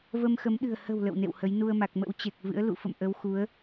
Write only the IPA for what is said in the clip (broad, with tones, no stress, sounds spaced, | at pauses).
v ə˧ m x ə˨˦ m ɗ ɨ̤˨˩ ə̯ h ə̤˨˩ w l ə̰˧˨ w n ḛ˧˨ w h ə˨˦ j n u˧ ə̯ m a˨˩ k̚ m ə̰˧˥ w t͡ɕ e˨˩ k̚ v ɨ̰˧˥ ə̯ l ṵ˧˨ f ə̰˧˨ m ʔ ə˨˦ w x u˨˦ ə̯